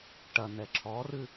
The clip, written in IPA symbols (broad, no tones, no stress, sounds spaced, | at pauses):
ʈ ɐ n̪ ɛ ǁʰ ɔ r ɨ